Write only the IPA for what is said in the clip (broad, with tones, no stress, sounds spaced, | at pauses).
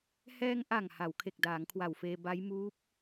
h ɛː˧ ŋ ʔ a˨˩ ŋ h a˩˦ w kʰ e˨˩ k̚ d aː˩˦ ŋ kʰ w a˨˩ w f eː˧ b a˦˥ j m uː˦˥ p̚